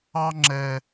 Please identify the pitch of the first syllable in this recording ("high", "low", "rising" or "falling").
high